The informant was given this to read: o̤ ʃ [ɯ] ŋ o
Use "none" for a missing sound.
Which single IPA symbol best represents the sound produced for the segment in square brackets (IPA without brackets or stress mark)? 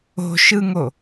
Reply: ɯ